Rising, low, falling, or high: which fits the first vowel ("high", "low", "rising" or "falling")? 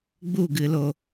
falling